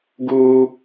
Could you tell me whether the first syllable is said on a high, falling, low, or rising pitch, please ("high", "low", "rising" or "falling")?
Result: high